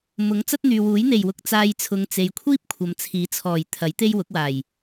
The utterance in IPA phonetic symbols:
mʊ˨˥ŋ t͡sɐ˥t̚n̪yː˨wuː˨˥j n̪e˨˩jwʊ˧k̚ t͡saː˧jt͡sʰʊ˨˧ŋ t͡se˨jkʷʰiː˥p̚ kʷʰɐ˨˧mt͡sʰiː˨˥t͡sʰɔː˨˩j t̪ʰɐ˨˥j t̪e˥j wʊ˨˥k̚waː˨˩j

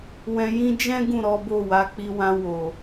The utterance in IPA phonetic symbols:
wɛ̃˧jĩ˦ d͡ʒɛ̃˦ ɡũ˦˨ ɾɔ˨˦ bo˦˨wa˨˦ k͡pi˧wã˧ wo˨

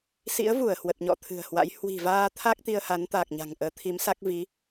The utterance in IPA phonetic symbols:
sḭ˧˥ə̯vu˧˩ə̯ hwə˨˩t̚ɲɔ̰˧˨ t̪ʰɨ̤˨˩ə̯hwa̰˧˥j hwi̤˨˩vaː˧t̪ʰa˦˥k̚ t̪i˧ə̯ha˨˦nt̪aː˨˩k̚ɲa̤˨˩ŋ ʔəː˨˦t̪ʰi˨˦msa˦˥k̚ vi˨˦

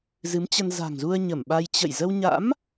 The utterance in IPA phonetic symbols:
zɨ˨˦mt͡ɕə˧n za̤˨˩ŋzu˧ə̯ ɲə˧˩mɓa˧j t͡ɕə̰˧˨j zə˧wɲa̰˧˥m

